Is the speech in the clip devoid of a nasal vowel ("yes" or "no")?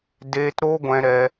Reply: no